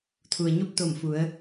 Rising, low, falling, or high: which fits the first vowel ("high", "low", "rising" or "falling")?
low